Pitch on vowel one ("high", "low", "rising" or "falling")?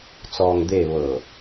low